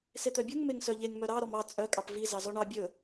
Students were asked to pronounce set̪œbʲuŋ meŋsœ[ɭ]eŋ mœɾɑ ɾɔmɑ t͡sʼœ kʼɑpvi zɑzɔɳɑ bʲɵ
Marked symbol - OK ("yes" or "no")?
no